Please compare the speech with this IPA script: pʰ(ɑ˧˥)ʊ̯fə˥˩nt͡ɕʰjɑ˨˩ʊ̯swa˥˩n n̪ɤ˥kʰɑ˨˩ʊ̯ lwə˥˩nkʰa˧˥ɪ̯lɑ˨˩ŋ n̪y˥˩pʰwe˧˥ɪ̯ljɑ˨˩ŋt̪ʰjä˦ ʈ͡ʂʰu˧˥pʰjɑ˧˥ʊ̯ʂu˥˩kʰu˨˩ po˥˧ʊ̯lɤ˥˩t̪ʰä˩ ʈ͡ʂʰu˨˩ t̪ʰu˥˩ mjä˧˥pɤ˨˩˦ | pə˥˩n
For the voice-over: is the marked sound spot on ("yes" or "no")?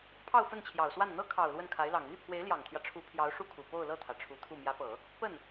no